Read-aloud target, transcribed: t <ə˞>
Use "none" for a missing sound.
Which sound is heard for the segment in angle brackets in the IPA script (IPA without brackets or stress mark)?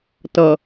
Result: ʌ